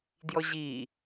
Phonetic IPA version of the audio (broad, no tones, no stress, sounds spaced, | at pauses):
d j ɔ ʑ i